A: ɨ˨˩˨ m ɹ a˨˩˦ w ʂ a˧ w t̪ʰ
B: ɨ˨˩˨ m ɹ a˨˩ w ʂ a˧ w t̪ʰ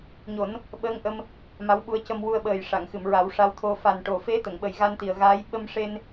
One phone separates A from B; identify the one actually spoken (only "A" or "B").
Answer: A